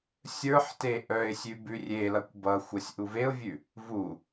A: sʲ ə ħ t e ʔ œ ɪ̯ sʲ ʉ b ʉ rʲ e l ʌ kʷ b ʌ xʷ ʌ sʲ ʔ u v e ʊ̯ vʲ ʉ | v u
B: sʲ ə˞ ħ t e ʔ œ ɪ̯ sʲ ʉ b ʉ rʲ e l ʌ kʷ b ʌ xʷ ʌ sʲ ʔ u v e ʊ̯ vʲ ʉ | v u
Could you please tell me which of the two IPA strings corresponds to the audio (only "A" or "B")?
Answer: B